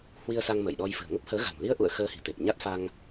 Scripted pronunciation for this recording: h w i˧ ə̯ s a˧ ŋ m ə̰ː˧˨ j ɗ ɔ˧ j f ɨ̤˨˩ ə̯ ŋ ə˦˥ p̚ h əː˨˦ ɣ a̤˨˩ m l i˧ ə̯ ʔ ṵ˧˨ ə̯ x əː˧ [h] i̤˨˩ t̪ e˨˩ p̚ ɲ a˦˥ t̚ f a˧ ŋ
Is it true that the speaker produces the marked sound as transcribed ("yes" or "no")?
yes